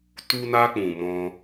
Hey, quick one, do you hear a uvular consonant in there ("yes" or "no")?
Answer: no